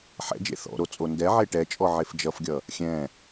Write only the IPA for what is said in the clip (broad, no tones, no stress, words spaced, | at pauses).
ħɛ̰d͡ʒḛ θɔ̰ɾo t͡sʼondɛʕe ʈɛt͡ʃʼɔ ʕefd͡ʒʌfɡʲʌ | xʲɛ̃